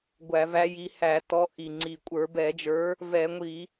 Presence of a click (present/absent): present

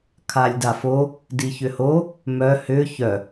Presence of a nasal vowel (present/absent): absent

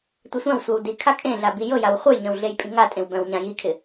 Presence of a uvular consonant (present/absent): present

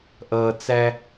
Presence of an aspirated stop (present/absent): absent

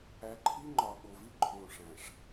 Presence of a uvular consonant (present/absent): absent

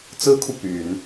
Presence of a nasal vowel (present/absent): absent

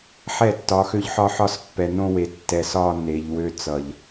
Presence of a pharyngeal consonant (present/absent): present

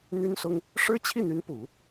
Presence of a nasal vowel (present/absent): absent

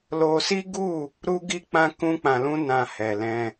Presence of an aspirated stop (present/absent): absent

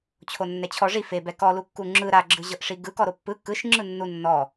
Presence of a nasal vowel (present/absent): absent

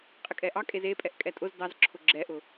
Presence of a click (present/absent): present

